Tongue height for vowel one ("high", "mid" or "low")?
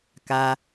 low